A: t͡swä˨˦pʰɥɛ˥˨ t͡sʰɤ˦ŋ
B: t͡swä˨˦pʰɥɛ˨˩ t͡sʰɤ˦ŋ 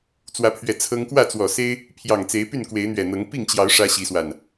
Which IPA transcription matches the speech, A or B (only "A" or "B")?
B